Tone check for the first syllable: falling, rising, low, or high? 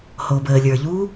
low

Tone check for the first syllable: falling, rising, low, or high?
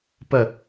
falling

